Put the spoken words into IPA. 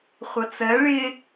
χʷʌt͡sɜ ɭɪ

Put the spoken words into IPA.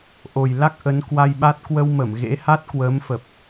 ʔo˨˩jla˦˥k̚ ʔə˨˦nkwa˧jɓa˦˥t̚ kwə˧wmə˧˩m ɣḛ˧˥ha˦˥t̚kwəː˨˦mfə˨˩p̚

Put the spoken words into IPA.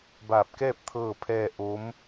baː˧˩p̚kɛː˥˨p̚ t̪ʰɤː˥˨pʰɛː˥˨ ʔo˧˥m

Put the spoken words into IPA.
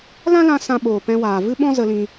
lã˦lã˧ sã˧ɓoː˨ pɛ̃˧waː˨vɨ˦ ɓɔ̃˦zə˧lĩ˧

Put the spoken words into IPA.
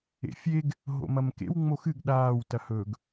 ḛfʲeɡ | ɦo̰mɐmkḛw ŋ͡moxɨɡ ɗaːw tɐhɵɡ

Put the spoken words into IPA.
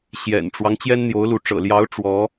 ɕjɛ̰˨˩nʈ͡ʂwɑ˦ŋ t͡ɕjɛ˥nn̪jo˧˥ʊ̯lu˧˥ ʈ͡ʂɤ̰˨˩ljɑ˧˥ʊ̯ ʈ͡ʂwɔ˧˥

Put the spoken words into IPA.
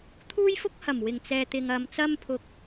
t̪ʰuː˥jfʊ˥k̚hɐ˨˩m wɪ˨˩ŋt͡sɛː˨t̪ɪ˨ŋ ɐ˨m t͡sɐ˥mpʰʊ˨˥k̚

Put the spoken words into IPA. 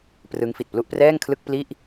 prɯ˦˥ŋ fi˨˩t̚plu˥˩ʔprɛː˥˩ŋ kʰlɯ˥˩k̚pli˥˩ʔ

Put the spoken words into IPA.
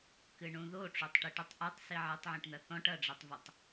kɨɳũðoʈ͡ʂotˤ ʈiʈutˤʔetˤ siʕetˤʕũʈn̪ɐ θɔ̃ʈ ɐɖ͡ʐetˤvutˤ

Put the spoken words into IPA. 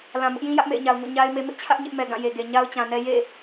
lã˨mʊ˦ʔjĩ˦ jä˦ʔmḛ˦˨ɪ̯ɲa˨ʊ̯ŋo̰˦˨ ɲa˦ɪ̯me˦ mɪ˦ʔt͡ɕʰä˦ʔ ɲɪ˦ʔmɛ˨ ɡã˦˨je˨ɡe˨ ɲa˦ʊ̯t͡ɕã˨nɛ˦ jḛ˦˨

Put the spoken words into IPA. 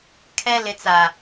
kʰɛ˨ lɪ˨t͡sa˨

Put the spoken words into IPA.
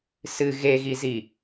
sɨ ɣeɣizi

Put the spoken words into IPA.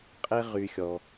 qʼe˦ ʁy˦xʲɔ˧

